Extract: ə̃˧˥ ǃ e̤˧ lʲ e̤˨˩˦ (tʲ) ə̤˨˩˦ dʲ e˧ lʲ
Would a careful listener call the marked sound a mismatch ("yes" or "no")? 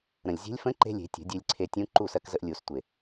no